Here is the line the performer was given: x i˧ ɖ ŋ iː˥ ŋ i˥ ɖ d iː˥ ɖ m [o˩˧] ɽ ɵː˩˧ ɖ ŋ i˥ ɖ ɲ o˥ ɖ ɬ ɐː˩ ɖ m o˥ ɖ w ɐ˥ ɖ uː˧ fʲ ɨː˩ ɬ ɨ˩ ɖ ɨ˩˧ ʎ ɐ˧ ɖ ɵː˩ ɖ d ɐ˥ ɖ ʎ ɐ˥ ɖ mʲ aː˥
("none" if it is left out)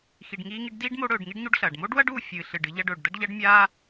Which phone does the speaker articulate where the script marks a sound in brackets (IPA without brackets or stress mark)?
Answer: o˧˥